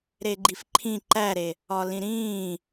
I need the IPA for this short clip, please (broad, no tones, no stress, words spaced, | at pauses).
ɾeɡ͡ǃifǃʰĩ ǃæɾe | ɒlĩɾĩː